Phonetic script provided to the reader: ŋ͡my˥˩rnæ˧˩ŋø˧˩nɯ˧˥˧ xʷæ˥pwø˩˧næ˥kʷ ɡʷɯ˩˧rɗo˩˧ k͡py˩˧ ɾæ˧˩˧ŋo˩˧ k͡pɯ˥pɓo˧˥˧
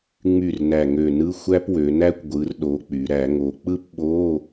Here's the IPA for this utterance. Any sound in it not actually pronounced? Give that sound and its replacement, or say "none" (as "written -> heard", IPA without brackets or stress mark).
none